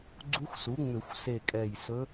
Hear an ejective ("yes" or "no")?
yes